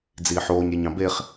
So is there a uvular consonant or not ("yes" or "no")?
yes